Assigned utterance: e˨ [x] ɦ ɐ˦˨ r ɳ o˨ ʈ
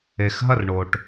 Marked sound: correct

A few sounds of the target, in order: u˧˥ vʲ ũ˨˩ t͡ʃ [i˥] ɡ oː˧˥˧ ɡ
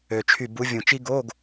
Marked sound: correct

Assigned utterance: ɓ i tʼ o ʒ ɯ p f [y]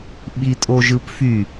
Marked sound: correct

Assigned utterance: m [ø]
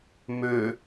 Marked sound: correct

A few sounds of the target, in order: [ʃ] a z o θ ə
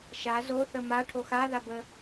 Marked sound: correct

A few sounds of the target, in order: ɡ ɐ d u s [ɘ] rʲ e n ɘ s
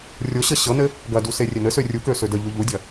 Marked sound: incorrect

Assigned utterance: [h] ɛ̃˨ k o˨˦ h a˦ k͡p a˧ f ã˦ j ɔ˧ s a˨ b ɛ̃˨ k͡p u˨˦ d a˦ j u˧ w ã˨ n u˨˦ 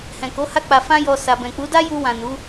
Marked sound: correct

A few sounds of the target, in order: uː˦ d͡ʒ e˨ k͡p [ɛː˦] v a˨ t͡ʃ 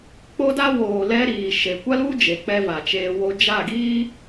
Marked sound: incorrect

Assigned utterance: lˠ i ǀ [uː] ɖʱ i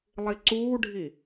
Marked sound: correct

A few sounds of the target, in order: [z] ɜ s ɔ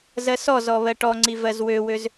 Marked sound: correct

